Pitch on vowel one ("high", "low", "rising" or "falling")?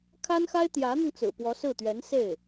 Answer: high